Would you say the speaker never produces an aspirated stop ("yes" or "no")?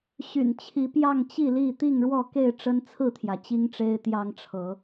no